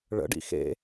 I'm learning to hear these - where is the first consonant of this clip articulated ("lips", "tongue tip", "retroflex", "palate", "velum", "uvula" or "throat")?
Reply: retroflex